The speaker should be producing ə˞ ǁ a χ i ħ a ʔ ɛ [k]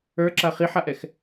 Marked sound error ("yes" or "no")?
yes